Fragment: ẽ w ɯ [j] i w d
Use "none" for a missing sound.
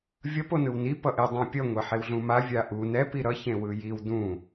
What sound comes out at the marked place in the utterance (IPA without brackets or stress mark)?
j